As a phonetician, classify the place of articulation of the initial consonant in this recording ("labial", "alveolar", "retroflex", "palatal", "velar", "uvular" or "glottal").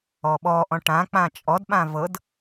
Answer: labial